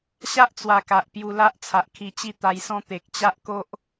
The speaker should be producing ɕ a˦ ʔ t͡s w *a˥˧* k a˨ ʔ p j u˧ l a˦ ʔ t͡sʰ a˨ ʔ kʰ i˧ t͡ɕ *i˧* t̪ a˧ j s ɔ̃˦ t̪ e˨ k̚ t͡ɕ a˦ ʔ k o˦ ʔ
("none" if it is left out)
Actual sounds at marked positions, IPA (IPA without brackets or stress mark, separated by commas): a˨˩, i˥˧